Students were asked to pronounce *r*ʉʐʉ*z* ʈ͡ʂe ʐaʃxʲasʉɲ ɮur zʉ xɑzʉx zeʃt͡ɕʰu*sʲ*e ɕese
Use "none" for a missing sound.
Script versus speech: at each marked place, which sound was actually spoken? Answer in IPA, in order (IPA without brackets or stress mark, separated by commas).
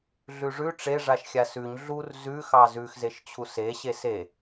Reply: ɮ, none, s